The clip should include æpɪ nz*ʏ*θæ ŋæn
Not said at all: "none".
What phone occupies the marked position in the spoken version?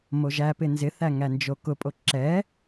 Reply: ɪ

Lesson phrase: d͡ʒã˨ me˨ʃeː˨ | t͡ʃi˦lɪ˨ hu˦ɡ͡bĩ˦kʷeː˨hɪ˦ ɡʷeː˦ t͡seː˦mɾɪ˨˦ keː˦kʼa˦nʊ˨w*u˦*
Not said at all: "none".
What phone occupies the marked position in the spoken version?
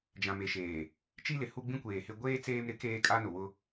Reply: ʊ˦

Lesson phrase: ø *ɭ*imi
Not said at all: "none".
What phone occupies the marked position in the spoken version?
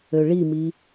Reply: ɭ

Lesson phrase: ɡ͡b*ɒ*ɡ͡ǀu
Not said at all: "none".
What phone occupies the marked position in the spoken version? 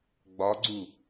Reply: ɒ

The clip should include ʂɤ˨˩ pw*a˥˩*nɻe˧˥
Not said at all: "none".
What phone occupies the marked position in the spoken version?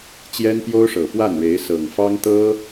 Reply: a˥˩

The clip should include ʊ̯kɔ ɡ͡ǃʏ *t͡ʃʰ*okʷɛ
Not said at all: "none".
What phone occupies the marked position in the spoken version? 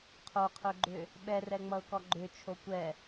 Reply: t͡ʃʰ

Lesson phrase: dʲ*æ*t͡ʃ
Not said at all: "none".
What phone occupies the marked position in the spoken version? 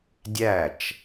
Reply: æ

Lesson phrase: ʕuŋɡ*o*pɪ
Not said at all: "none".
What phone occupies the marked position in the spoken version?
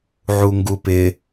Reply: u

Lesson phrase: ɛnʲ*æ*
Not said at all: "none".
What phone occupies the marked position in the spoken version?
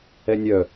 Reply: œ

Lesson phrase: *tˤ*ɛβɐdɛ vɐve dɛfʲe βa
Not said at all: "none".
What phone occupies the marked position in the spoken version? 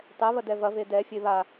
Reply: tˤ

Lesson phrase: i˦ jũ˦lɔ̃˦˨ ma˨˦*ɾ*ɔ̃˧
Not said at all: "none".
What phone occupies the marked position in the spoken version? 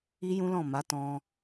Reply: t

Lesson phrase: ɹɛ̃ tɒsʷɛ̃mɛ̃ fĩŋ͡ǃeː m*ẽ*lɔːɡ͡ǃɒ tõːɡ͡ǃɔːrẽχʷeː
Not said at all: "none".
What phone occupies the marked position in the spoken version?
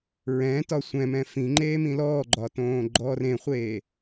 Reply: ĩ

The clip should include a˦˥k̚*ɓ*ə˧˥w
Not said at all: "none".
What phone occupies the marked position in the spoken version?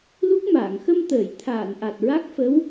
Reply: f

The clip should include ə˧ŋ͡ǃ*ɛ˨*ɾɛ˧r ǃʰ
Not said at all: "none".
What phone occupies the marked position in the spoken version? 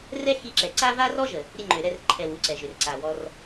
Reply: ø˨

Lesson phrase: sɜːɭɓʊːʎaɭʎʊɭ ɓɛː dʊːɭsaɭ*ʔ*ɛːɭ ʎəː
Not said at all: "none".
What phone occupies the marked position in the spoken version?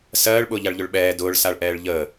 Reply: ʔ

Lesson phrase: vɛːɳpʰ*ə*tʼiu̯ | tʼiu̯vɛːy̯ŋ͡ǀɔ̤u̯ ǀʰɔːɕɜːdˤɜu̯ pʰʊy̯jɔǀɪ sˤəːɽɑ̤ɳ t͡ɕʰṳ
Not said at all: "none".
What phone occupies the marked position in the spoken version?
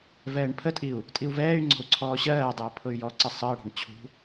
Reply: ə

